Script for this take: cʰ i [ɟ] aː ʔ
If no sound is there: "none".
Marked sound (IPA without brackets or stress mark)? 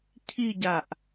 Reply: ɟ